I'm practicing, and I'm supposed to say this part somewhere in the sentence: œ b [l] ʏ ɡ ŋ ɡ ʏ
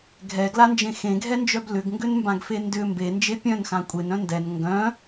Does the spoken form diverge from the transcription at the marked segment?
no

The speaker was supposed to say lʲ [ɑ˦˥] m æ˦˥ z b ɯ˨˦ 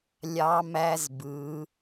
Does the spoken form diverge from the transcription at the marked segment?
no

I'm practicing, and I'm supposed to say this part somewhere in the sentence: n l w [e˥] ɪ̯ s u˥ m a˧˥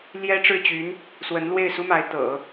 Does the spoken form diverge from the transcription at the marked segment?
yes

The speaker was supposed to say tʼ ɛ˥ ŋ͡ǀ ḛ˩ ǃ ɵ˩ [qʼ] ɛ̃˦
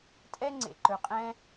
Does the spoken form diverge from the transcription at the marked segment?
no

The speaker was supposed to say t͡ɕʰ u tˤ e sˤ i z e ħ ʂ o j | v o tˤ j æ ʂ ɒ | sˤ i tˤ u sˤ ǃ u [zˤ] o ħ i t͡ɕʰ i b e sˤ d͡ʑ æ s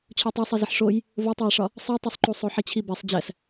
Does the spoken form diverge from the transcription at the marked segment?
yes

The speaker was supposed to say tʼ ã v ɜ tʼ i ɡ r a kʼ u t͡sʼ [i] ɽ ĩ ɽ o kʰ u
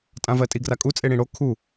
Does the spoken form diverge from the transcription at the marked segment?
yes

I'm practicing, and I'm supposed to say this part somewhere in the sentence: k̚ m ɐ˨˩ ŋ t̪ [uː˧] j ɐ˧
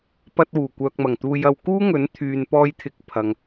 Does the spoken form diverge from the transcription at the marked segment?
no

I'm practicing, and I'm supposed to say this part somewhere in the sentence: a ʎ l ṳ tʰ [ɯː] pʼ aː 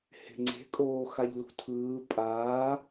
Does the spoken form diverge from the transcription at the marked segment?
no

